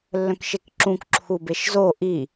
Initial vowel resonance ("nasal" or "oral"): nasal